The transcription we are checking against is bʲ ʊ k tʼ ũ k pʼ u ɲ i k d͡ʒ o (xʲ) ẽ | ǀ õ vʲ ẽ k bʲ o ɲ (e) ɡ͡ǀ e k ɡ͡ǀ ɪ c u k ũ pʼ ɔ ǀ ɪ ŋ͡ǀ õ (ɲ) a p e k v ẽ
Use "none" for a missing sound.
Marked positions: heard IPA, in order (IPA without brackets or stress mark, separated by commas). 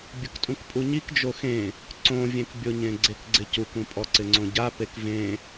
x, ẽ, ɟ